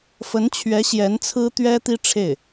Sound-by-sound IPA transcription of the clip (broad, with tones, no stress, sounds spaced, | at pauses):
f ə˧˥ n t͡ɕʰ ɥ ɛ˧˥ ɕ j ɛ˧˥ n t͡sʰ ɹ̩˥ t̪ ɥ ɛ˥ t̪ i˥ ʈ͡ʂʰ e˥˩ ɪ̯